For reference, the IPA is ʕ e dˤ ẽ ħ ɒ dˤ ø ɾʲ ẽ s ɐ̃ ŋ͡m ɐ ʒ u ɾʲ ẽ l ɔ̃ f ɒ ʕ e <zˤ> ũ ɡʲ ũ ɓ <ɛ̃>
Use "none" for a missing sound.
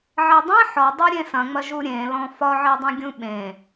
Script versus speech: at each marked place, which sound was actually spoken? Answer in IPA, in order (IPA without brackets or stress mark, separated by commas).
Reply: dˤ, ẽ